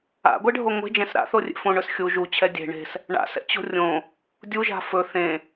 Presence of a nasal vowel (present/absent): present